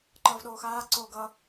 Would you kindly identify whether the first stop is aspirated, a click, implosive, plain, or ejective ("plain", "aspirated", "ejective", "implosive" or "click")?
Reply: click